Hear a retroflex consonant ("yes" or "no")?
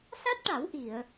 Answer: yes